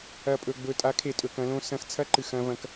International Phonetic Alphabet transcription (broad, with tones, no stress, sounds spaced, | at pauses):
ɐ˨ pʼ ɵ˨ ɡ͡b ɵ˨ tʼ a˨˦ kʰ e˨ tʼ ɵ˨ k ɐ̃˦ l õ˦ s ɐ̃˦ x t͡sʰ ɐ˦ ǃ ɨ˨ x ɐ̃˦ v ɐ̃˦ k